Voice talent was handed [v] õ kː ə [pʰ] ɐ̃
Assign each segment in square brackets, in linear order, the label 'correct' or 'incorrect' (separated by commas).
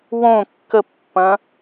incorrect, incorrect